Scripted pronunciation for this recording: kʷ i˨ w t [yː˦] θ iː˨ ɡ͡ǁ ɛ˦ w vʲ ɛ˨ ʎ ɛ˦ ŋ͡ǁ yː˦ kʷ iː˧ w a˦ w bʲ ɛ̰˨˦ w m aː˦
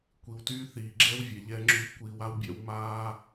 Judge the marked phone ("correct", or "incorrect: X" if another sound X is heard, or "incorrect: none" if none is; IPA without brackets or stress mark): correct